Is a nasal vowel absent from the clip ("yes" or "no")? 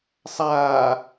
yes